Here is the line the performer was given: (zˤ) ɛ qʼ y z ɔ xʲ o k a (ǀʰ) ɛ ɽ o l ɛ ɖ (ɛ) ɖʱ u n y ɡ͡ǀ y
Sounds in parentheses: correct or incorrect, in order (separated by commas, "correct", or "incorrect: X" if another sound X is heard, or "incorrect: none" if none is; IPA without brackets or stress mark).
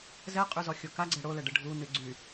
incorrect: z, incorrect: ɡ͡ǀ, incorrect: ɘ